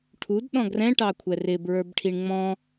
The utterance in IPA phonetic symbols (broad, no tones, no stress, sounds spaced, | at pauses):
ʈʰ u d ɗ ɔ̃ ɡ r ɛ̃ ʈ ɑ kʷʰ ɛ r ɪ b ɹ ə˞ b ʈʰ i ɳ ŋ͡m ɔ̃